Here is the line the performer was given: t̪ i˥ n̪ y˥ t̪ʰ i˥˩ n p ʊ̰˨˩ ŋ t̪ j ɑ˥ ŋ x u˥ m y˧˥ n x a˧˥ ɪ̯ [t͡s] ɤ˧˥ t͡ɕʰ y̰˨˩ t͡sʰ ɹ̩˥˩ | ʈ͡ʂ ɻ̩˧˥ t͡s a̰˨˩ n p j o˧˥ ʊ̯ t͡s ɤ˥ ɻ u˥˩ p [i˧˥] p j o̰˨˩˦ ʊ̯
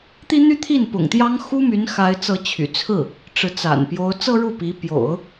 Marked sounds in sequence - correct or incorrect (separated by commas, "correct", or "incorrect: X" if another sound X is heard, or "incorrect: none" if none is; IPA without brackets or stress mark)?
correct, correct